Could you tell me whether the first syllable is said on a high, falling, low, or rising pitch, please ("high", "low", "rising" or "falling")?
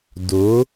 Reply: rising